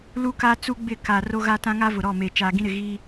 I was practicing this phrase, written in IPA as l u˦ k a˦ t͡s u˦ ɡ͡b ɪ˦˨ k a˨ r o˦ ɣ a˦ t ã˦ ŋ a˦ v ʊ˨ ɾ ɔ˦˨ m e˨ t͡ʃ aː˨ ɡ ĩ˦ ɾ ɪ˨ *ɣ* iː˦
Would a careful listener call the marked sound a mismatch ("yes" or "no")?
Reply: no